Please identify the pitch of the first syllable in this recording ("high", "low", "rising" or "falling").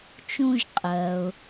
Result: high